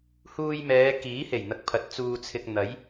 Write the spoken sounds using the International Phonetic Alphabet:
h uː˧ j m ɛː˨˧ k iː˨˥ h e˨˩ j n̪ ɐ˨ k̚ pʰ ɐ˨ t̚ t͡s uː˧ t͡sʰ ɪ˧ k̚ n̪ ɐ˨˥ j

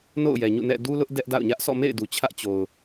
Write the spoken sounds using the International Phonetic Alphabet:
n o̰˦˨ ʊ̯ j ɛ˨ ɲ ṵ˦˨ n ɛ̰˦˨ d u˦ l ʊ˦ ʔ d ɛ˦ ʔ d a̰˦˨ ʊ̯ ɲ ä˦ ʔ s ɔ̰˦˨ m ḛ˦˨ ɪ̯ d u˨ t͡ɕʰ ä˦ ʔ t͡ɕ o˨ ʊ̯

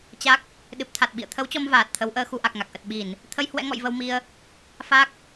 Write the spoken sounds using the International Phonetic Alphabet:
t͡ɕ a˦˥ k̚ | ɗ ɨ˨˩ p̚ t̪ʰ a˨˩ t̚ ɓ ḭ˧˨ ə̯ t̪ʰ ə˨˦ w t͡ɕ ɔ˧ m v aː˨˩ t̚ t̪ʰ ə˨˦ w ʔ əː˧ x u˧ ʔ a˨˩ k̚ ŋ a˨˩ k̚ ʔ ə˨˩ t̚ ɓ i˧˩˨ n | t̪ʰ ə˧ j h w ɛ̰˧˥ ŋ ɔ̰˧˨ j v ə˧ w m i˧ ə̯ | f a˦˥ k̚

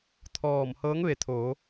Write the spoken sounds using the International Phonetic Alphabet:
t̪ʰ ɔː˧˩ m h ɤː˧˥ ŋ ʋ e˩˧ t̪ʰ oː˩˧

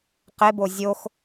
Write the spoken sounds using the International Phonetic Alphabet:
q e b o zʲ o x

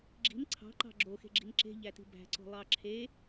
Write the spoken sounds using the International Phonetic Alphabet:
ɡ͡ǁ i̤ n ǀʰ ɑ̤ ǃ ɑ̤ ɡ͡ǁ o x e̤ ɡ͡ǁ i̤ n ǁ e̤ ʎ æ t i̤ b æ̤ ǀ o̤ lˠ ɑ ǁʰ e

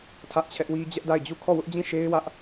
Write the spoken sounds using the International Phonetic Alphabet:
tʰ ä˦ ʔ t͡ɕʰ ɛ˦ ʔ w i˦ d͡ʑ ɛ˦ ʔ d a˦˨ ɪ̯ d͡ʑ u˦˨ kʰ ɔ˦˨ w ʊ˦ ʔ d͡ʑ ĩ˦˨ ʃ e˦ ɪ̯ w ä˦ ʔ

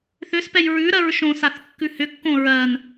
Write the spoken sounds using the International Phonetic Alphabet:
θ ʏ s p ɛ j ɹ ʉ ɾ ɜ ɹ ʃ õ s a θ kː ʉ h ʏ kː õ ɹ ɜ n

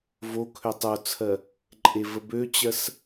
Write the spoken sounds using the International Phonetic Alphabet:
v o kʰ ø tˤ o t͡sʰ ɜ | ǃʼ e v ə b ø t͡ɕ ɜ s

